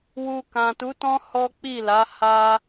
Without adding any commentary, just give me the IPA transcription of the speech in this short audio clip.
w u˧ k ã˨ t u˨˦ t ɔ̃˦ h ɔ˦ k͡p i˦˨ l a˨˦ h a˧

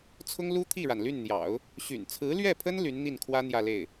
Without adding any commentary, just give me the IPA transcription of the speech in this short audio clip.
t͡sʰ ʊ˥ ŋ l u˥ t̪ʰ i˥˩ ɻ a˩ n l y˥˩ n n̪ j ɑ̰˨˩˦ ʊ̯ | ɕ y̰˨˩ n t͡sʰ ɹ̩˧˥ l ɥ ɛ˥˩ pʰ ə˥ n l y˧˥ n n̪ i˥˩ n kʰ w ä˥ n̪ j ä˥˧ l e˥˩ ɪ̯

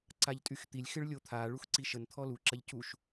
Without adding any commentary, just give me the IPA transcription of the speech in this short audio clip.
ǀ a ʎ tʼ y x t̪ i lʲ x ɪ ɭ lʲ o t̪ʰ a ɭ u x ǀ i ʃ ə n t̪ʰ ɔ l u ǁ ɐ ʎ c u ʃ

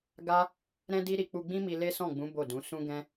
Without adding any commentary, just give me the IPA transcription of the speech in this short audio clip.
ɡ a˦ | ɾ ɛ̃˦ d i˦ ɾ i˧ k͡p u˧ ɡ͡b ĩ˦ m i˧ l e˦ s ɔ̃˦˨ ɡ͡b ũ˨˦ b o˦˨ d ũ˨˦ s ũ˦ ɡ ɛ̃˦

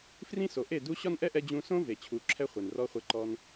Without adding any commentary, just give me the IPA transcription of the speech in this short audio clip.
f r ĩ˦ s o˨ ʔ e˦˨ d u˦ ɕ ɒ˦ n ʔ ɛ˦ ʔ ɛ˧ d͡ʑ ũ˧ s õ˦ v e˨ t͡ɕʰ u˨˦ ǁʰ ɛ˦ χʷ e˨ n r ɔ˦ χʷ e˧ ǃ ɔ˧ n

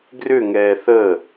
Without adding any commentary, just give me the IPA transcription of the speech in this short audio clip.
ɡ r ʏ ŋ ɛː θ əː

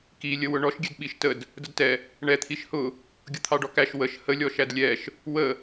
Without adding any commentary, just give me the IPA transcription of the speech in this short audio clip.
k i lʲ ə w ʊ ɳ ɔ ʃ ɡʲ ɛ d ɓ i ʃ t ə d | d ə d t ɛ | ɳ ɛ t̪ʰ i ʃ h ʊ | ɡʲ ʊ t̪ʰ ɑ ɖ ɔ k æ ʃ w ə ʃ h ə lʲ ɔ ʃ æ d lʲ ɛ ʃ | w ə

